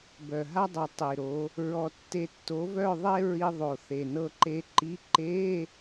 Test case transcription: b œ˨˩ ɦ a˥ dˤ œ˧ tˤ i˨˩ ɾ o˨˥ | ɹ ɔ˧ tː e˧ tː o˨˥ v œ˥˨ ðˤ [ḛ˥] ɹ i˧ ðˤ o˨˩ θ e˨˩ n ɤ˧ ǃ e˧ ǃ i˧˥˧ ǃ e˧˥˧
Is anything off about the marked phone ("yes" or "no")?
yes